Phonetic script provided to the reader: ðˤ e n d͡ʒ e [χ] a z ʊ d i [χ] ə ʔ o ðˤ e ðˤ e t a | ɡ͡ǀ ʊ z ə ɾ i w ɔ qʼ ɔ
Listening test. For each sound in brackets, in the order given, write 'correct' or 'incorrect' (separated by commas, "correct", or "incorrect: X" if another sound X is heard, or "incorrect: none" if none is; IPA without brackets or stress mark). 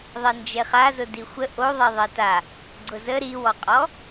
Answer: correct, incorrect: xʷ